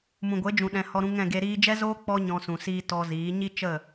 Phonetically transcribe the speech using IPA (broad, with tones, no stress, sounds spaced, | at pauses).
m ũ˨ ɡʷ e˨˦ d͡ʒ ũ˨ ɗ ɛ̃˧ h ɔ˧ ɾ ũ˧ ŋ ɛ̃˦˨ ɡ e˧ ɾ iː˦ d͡ʒ ɛ˦ z oː˦ k͡p ɔ˦ ɲ ɔ̃˦ s ũ˧ s iː˦ t ɔ˧ z iː˨˦ ɲ i˦ t͡ʃ ə˦˨